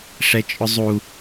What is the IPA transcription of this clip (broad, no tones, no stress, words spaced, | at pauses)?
ʂɛt͡ʃʼʊzˤu